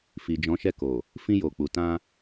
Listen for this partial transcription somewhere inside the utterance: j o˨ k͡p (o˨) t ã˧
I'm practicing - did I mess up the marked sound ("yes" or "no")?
yes